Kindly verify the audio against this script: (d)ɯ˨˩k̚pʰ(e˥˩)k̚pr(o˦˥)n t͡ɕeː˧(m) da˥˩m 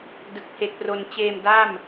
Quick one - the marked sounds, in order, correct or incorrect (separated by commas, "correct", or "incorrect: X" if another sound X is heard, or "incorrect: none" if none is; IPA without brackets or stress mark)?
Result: correct, incorrect: e˨˩, incorrect: o˧, correct